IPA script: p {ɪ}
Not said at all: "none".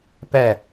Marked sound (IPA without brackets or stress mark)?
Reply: ɛ